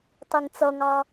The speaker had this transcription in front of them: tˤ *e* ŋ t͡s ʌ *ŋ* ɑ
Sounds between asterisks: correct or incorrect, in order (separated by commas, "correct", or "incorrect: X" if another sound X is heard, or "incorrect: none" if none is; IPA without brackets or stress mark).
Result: incorrect: i, correct